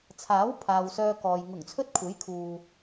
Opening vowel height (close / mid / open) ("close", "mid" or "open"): open